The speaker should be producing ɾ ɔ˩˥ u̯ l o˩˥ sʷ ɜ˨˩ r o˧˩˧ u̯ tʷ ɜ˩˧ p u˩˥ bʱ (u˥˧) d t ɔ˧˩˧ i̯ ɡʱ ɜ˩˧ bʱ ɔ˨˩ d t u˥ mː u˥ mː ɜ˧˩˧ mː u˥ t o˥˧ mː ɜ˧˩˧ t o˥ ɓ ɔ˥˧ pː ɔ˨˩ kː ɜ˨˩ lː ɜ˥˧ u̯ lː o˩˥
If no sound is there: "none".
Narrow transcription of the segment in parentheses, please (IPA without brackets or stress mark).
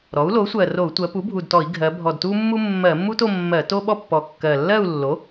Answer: u˨˩